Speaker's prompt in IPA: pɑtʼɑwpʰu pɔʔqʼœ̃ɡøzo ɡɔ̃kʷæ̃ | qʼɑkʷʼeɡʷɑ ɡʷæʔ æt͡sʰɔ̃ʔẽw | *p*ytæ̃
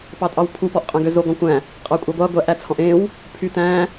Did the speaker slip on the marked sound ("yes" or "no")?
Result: yes